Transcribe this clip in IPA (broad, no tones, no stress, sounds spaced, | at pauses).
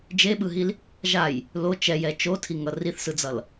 d͡ʒ e ɓ ɯ ɦ i l | ʒ a j | l o t͡ʃ ɛ j ɛ t͡ʃ o tʰ i ŋ ʌ r i θ s ɯ d͡z ʌ l